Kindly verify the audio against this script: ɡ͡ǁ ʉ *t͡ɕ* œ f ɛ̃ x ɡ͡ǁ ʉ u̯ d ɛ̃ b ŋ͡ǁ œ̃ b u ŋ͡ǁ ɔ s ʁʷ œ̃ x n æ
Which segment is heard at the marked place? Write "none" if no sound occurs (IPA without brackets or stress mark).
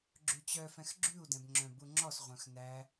t͡ɕ